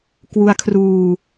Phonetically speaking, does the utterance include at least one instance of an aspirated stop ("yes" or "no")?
yes